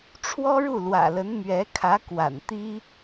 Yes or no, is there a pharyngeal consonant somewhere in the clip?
no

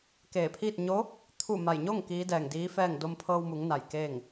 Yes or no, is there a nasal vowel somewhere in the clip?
no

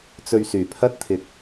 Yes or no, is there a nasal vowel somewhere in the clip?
no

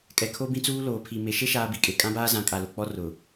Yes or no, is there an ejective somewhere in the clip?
yes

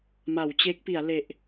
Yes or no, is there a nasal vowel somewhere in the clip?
no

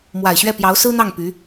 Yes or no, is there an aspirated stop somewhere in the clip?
no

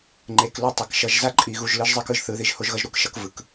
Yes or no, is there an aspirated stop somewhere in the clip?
no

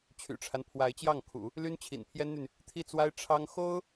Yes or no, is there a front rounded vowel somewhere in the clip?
yes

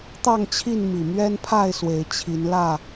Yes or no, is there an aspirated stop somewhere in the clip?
yes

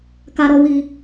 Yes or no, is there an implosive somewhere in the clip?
no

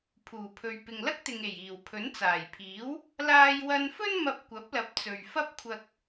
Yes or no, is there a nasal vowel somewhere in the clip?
no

